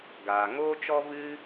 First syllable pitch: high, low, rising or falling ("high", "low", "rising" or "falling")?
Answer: low